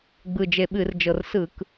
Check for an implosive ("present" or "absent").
present